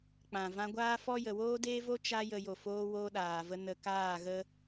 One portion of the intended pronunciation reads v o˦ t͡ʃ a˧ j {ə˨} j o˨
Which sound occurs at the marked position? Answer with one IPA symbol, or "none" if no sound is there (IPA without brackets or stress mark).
ə˨